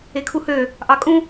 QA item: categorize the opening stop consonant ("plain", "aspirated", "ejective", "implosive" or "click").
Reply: aspirated